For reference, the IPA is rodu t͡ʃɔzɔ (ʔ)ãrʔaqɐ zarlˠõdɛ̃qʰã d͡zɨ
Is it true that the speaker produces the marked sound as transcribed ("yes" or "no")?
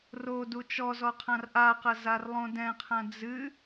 no